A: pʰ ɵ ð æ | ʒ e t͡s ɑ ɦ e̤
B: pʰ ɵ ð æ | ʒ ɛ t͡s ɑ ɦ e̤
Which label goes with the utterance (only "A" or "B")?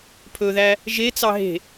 A